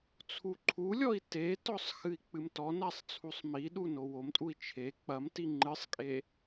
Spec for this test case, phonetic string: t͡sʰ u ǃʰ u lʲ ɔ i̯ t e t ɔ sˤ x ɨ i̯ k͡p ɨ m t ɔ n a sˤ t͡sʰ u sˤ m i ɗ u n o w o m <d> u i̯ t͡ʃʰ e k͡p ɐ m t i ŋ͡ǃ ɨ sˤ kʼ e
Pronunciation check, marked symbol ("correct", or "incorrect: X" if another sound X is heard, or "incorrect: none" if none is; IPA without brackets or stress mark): incorrect: tʼ